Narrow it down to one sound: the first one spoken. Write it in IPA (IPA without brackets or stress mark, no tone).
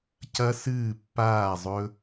c